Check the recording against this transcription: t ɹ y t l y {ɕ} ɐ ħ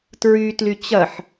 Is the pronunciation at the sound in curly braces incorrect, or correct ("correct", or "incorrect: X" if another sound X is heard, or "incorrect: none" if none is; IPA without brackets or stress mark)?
incorrect: t͡ɕ